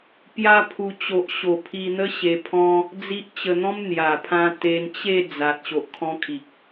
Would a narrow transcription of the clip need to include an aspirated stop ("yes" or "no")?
yes